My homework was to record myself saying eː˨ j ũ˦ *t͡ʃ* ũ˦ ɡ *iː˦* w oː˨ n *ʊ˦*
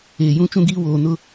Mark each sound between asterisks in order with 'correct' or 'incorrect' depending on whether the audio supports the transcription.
correct, correct, correct

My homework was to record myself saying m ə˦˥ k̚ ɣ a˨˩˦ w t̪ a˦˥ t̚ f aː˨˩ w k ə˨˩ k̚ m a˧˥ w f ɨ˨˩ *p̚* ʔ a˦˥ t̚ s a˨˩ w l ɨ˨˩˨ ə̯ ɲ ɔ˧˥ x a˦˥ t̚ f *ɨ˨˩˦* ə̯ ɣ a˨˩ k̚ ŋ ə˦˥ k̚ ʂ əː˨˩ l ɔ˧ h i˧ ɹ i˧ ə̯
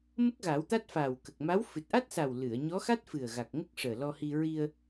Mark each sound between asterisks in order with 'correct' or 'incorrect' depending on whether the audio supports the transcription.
incorrect: t̚, incorrect: ɨ˨˩

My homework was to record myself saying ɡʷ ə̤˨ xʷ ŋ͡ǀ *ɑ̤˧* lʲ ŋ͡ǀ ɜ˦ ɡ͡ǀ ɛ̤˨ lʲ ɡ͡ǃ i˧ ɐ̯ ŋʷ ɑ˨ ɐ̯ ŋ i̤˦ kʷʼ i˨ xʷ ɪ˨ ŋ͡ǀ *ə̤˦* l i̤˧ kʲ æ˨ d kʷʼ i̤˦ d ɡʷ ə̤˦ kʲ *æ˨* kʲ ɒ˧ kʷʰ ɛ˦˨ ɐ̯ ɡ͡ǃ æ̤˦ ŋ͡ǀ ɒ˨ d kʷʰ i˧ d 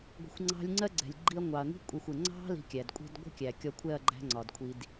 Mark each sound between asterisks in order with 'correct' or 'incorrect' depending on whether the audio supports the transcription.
correct, incorrect: ɑ̤˦, correct

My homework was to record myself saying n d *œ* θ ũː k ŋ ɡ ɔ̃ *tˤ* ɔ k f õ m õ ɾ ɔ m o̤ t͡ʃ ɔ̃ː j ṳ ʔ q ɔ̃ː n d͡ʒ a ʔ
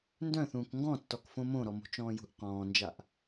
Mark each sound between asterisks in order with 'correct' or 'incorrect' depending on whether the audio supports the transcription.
incorrect: œ̃, incorrect: tː

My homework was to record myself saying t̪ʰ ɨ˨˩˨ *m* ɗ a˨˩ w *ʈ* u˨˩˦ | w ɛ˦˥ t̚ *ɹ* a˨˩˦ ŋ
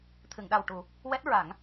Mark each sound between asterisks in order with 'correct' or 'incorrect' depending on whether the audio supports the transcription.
incorrect: ŋ, correct, correct

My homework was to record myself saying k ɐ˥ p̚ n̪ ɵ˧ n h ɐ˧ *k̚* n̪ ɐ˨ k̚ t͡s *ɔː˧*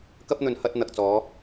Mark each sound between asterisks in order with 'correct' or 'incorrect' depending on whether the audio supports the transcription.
incorrect: t̚, incorrect: ɔː˨˧

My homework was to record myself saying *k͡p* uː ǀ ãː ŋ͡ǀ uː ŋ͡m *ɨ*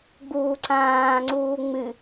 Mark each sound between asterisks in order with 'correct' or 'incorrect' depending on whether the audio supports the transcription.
incorrect: ɡ͡b, correct

